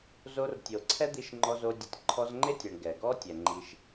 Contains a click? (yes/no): yes